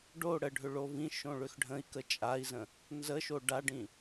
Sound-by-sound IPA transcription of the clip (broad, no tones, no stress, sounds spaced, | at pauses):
ɖ o ɽ ə ɖʱ ʏ ɭ o v ĩ ʃ õ ɭ ʏ x ɖʱ ə̃ i̯ k ə t͡ʃʼ a i̯ z ə̃ | n z ə ʃ o ɖ a ɖ ĩ